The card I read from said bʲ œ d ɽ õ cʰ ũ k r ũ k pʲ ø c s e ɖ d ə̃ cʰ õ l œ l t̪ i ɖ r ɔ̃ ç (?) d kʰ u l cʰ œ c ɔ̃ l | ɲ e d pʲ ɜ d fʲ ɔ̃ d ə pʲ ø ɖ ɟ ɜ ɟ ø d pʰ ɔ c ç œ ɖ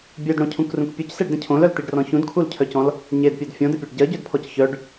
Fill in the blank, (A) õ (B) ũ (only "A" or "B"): B